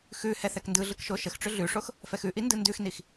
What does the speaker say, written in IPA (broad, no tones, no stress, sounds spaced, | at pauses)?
x ʉ h ɛ θ ɛ k n d ɯ ɮ ɯ k ʃ o ʃ ə x ʈ͡ʂ ʏ ɮ ʉ ʂ o x | f ɛ x ʉ ʔ i n d ɯ n d ʉ x n i x